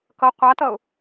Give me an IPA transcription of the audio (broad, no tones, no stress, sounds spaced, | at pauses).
k ʌ qʷ a t ʌ ʊ̯